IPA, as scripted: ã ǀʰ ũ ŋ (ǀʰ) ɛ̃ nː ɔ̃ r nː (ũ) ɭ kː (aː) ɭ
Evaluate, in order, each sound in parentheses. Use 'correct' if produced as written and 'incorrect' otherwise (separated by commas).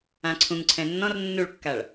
correct, incorrect, incorrect